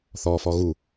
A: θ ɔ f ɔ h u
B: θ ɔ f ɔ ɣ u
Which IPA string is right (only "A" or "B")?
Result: B